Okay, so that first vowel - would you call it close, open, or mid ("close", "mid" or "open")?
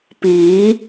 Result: close